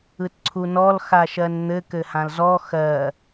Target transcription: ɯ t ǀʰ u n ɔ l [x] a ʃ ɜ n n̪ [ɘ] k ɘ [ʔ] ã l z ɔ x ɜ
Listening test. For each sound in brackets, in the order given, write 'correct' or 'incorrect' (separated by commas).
correct, correct, incorrect